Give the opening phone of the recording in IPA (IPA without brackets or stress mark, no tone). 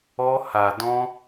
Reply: ɔ